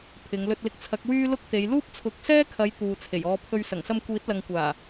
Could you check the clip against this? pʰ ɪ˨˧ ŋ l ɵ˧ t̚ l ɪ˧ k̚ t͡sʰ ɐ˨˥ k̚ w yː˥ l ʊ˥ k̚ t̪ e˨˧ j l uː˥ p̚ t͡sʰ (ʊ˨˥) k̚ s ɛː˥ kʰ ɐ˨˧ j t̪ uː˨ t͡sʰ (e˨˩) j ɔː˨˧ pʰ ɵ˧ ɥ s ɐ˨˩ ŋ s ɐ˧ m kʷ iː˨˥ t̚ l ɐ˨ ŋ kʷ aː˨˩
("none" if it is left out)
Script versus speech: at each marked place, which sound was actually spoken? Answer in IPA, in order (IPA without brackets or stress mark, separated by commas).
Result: ʊ˨˥, e˨˩